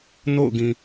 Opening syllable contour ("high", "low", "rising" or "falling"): falling